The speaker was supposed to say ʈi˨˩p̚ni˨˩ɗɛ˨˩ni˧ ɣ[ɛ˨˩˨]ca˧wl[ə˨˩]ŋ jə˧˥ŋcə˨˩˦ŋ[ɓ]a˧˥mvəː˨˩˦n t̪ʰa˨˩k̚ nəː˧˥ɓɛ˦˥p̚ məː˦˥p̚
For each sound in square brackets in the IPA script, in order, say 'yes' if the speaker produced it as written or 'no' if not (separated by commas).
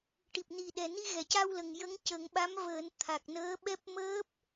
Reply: yes, yes, yes